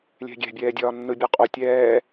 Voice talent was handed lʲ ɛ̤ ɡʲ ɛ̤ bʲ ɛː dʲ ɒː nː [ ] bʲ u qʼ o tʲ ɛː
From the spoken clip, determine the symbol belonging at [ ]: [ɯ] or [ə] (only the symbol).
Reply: ɯ